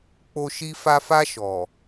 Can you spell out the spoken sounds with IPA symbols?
k͡p o˧ ʃ i˧ f a˧ f a˧ ʃ ɔ˨

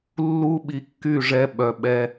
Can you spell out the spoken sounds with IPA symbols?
lː u˦ ɓ i˧ kː y˦˨ ʐ ɛ˦ ɓ œ˧ ɓ ɛ˦

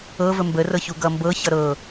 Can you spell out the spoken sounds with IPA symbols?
ɤ v ə m b ə r ɤ ç u ɡ ʌ m b ɤ ç ʌ ɾ ɤ

